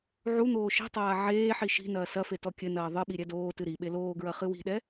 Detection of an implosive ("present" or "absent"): present